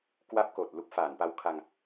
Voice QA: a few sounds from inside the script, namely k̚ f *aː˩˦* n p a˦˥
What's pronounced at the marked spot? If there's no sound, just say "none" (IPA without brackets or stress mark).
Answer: aː˩˦